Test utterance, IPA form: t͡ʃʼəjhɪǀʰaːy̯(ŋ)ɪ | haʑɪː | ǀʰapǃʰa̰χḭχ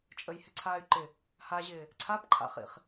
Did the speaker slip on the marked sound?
yes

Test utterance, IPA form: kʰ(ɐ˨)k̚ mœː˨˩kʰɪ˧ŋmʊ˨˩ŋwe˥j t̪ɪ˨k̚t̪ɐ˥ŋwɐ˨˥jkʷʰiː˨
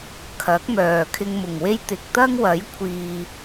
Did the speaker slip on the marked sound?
yes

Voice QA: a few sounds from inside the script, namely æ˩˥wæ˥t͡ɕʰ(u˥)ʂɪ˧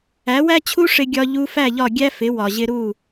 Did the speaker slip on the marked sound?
no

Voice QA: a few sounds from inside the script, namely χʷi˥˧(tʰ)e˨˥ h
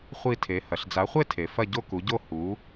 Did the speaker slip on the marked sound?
no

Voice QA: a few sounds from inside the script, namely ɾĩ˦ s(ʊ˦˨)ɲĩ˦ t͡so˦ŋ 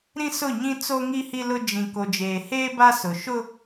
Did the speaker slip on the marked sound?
no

